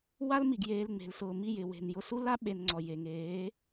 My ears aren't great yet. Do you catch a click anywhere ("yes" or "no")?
yes